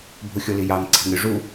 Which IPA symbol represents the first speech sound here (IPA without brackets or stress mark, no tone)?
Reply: bʱ